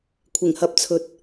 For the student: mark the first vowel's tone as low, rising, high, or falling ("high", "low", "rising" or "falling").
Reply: low